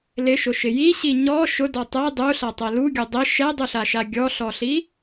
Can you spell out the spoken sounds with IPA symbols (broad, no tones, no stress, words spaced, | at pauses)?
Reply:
lɪʃʊʃɪ jiɕi ɲɔ ʃʊdɔ tˤɛ dˤuɬatˤɛ luɡʲʊ dˤɪ ʃɛdˤuɬaʃa ɡʲɔɬɔɬi